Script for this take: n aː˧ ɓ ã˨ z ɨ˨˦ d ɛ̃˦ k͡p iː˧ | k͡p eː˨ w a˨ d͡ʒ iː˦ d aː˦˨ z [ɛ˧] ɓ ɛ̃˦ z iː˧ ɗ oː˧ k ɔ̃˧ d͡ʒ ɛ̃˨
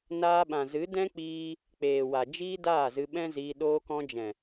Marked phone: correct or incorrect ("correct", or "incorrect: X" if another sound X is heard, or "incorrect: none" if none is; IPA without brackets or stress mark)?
incorrect: ɨ˧